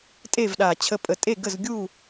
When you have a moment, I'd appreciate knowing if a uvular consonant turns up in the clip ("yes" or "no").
no